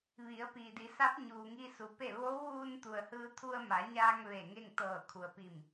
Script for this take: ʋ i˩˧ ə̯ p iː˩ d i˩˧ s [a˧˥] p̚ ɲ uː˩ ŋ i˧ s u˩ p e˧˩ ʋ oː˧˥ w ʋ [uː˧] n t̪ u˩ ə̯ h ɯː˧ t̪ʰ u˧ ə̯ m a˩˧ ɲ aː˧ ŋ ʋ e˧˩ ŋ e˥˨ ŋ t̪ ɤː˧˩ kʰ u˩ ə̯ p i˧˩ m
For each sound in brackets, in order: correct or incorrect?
correct, correct

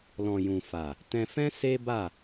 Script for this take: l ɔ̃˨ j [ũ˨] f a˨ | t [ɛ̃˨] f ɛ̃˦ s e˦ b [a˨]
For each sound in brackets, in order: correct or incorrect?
correct, incorrect: ɛ̃˧, incorrect: a˦˨

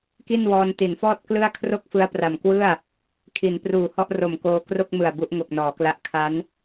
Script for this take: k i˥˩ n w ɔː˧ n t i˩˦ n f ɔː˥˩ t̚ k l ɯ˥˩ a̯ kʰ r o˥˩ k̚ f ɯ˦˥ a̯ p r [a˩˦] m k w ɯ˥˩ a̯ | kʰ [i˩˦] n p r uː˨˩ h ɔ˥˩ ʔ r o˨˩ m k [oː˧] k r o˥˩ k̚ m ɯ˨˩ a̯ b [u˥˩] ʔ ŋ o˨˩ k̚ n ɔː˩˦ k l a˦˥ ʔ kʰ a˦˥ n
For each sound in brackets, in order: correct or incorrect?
incorrect: a˨˩, correct, correct, incorrect: u˦˥

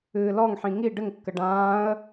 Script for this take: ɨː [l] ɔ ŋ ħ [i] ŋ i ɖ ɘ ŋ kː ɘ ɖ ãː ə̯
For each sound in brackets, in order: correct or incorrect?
correct, incorrect: ĩ

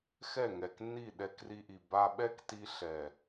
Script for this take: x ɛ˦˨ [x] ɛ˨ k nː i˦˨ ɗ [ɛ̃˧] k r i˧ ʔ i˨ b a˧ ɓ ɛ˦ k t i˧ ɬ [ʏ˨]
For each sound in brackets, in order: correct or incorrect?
incorrect: ŋ, incorrect: ɛ˧, incorrect: ɛ˨

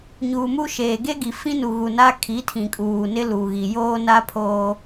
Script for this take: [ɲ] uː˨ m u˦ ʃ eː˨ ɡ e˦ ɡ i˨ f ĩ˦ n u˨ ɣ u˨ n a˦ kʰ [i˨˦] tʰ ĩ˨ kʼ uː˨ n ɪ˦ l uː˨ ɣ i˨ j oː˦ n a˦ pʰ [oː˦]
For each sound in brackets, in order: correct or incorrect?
correct, correct, correct

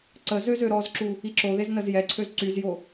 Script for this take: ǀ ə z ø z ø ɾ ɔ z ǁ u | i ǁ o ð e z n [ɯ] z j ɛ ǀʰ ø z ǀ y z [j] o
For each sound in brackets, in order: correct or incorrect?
incorrect: ə, correct

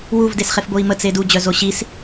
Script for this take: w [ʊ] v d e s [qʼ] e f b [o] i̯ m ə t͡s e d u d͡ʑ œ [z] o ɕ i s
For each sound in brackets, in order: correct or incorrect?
incorrect: u, incorrect: χ, correct, correct

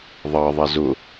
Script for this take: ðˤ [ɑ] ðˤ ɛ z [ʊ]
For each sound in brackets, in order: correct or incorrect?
correct, correct

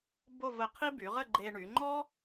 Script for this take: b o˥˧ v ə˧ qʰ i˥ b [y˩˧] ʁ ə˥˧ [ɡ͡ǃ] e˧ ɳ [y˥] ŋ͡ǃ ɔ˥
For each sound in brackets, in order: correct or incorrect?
correct, correct, incorrect: y˩˧

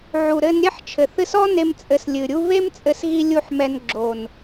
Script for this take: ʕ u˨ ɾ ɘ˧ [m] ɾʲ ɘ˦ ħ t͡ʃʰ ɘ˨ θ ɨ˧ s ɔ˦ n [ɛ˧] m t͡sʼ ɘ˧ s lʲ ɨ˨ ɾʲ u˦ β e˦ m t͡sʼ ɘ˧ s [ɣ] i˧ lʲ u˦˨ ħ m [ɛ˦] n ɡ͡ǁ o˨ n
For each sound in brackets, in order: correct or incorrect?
incorrect: n, incorrect: e˧, correct, incorrect: ɛ˧

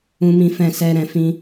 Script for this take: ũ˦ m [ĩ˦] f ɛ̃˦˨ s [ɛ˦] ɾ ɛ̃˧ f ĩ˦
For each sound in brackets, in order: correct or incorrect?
correct, incorrect: ɛ˧

